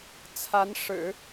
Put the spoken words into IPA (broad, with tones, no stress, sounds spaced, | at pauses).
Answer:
t͡sʰ a˧˥ n ʂ ɻ̩˨˩˦